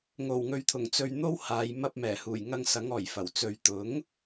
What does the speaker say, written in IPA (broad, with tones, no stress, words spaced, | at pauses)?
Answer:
ŋo˨˩wŋɵ˨ɥt̪ʰʊ˨˩ŋ t͡sɵ˧ɥn̪o˥whaː˨˧j mɐ˧p̚mɛː˨˩huː˨˩j ŋɐ˧ŋ sɐ˨˥ŋɔː˨˩jfɐ˨˩w t͡sɵ˨ɥt̪ʊ˨˥ŋ